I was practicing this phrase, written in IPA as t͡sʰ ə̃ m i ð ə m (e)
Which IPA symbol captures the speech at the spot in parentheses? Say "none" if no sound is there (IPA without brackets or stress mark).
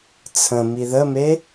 e